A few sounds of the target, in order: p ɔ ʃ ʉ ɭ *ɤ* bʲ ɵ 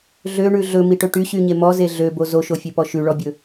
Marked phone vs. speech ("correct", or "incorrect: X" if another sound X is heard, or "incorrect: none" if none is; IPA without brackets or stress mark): incorrect: ɔ